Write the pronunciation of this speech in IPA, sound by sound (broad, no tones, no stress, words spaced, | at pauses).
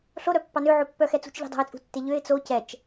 ɬoɾœpːɑ nø ʕopːœxɛt͡sṳt͡ʃ ʎi̤dˤo̤ɪ̯t͡sʼṳtːe ʎøɪ̯ t͡so cɛt͡ʃ